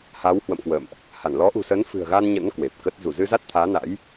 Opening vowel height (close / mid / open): open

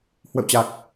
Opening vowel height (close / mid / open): mid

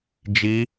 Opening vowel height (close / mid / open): close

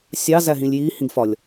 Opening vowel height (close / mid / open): open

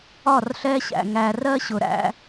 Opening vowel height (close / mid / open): open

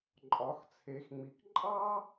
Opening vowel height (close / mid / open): open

